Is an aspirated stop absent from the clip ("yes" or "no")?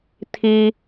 no